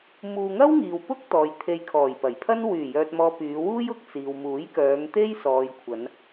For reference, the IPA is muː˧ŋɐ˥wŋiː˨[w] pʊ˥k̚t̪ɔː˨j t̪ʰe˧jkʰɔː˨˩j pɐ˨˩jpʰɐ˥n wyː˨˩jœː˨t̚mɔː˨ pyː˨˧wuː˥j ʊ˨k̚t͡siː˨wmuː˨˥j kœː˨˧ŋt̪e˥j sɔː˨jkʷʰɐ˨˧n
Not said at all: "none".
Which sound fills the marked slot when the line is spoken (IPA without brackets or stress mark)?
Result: w